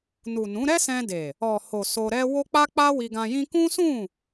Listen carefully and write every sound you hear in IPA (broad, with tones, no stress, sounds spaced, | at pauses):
n u˨ n ũ˨˦ ɾ ɛ˦ s ɛ̃˧ d e˨ | ɔ˨ h o˨ s o˧ ɾ ɛ˦ w o˦ k͡p a˦ k͡p a˦ w i˧ ɡ ã˧ j ĩ˧ k ũ˦ s ũ˦˨